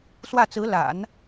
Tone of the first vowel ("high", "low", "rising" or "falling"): falling